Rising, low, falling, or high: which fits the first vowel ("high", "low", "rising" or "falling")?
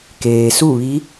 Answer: low